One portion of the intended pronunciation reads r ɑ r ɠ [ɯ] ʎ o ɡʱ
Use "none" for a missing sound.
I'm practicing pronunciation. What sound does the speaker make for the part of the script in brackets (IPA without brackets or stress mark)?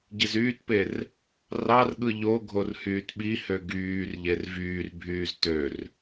ɯ